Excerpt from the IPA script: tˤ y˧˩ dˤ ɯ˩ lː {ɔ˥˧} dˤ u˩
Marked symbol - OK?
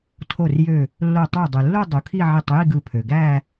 no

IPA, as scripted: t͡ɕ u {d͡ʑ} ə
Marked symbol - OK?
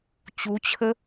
no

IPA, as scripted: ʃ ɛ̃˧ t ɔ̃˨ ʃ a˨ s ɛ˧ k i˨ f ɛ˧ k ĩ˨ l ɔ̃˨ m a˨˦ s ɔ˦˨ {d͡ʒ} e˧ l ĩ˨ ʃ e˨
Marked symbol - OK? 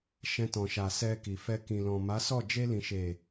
yes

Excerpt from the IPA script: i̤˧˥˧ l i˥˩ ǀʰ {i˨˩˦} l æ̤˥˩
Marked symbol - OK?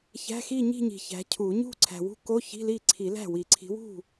yes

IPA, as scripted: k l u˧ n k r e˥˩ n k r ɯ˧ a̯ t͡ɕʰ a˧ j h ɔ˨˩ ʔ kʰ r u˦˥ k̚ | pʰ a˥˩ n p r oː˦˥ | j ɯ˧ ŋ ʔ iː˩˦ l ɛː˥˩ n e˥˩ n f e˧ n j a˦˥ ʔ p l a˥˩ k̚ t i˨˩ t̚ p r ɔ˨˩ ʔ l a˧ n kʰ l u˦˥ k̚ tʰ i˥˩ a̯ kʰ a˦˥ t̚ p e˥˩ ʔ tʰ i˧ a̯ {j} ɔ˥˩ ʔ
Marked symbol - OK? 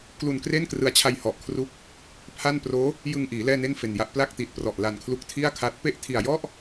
yes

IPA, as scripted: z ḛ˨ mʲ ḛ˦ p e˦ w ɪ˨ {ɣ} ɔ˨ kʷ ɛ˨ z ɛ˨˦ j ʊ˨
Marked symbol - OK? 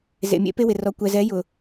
no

